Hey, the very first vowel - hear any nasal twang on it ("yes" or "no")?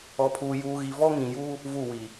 no